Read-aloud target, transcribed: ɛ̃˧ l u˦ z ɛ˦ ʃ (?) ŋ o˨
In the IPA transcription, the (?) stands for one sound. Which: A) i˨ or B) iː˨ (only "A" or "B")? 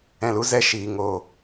B